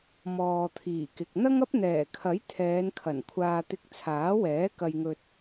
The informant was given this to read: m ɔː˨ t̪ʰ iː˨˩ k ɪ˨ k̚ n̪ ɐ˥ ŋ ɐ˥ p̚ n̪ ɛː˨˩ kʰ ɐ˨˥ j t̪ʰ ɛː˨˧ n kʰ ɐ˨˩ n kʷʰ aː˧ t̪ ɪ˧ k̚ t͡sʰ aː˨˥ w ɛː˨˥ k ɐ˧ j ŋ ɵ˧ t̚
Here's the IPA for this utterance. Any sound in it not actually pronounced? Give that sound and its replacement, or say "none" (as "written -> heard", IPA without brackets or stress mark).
none